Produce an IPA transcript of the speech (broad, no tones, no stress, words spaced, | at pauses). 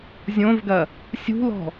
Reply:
zʲõvɡɐ | sʲṳlɔ̤